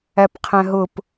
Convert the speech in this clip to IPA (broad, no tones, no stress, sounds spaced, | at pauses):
æ p qʰ æ̃ ɦ ʊ p